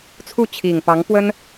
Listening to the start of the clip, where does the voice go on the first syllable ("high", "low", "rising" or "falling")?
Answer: falling